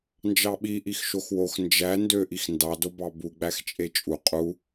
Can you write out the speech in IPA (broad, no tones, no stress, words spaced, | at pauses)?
nd͡ʒɑɓiʔix ʃoxwox nd͡ʒæ ndøʔix ndɑdobɑ buɡ͡bæxt͡ʃʼe t͡ʃʼu qʼu